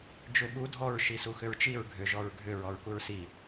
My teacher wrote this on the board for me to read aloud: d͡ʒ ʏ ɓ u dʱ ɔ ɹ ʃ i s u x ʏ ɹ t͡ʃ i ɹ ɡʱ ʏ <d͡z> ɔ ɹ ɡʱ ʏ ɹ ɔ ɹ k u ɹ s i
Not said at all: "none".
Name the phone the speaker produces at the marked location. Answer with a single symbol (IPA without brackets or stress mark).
ʒ